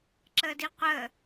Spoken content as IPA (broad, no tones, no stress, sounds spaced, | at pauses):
ǁ əː d i qʷ əː